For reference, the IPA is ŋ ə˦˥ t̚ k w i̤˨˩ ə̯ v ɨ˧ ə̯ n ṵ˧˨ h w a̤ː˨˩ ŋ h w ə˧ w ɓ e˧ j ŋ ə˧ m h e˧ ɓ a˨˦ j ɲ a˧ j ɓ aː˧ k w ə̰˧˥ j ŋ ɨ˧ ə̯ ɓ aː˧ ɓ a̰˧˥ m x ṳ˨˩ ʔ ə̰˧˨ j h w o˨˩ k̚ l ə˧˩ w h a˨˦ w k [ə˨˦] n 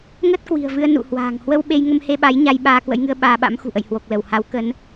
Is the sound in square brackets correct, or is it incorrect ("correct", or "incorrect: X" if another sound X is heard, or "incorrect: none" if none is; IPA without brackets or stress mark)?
correct